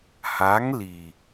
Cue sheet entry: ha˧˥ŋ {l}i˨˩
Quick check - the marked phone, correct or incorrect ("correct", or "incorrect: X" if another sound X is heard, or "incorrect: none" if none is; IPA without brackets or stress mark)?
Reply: correct